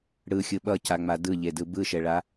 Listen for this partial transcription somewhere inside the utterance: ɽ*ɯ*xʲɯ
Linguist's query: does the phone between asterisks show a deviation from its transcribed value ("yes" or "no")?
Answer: no